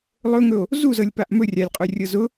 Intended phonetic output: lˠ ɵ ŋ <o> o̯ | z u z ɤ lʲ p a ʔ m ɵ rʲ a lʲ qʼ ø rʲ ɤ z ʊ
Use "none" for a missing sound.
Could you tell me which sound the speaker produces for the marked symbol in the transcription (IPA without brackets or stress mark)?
ɵ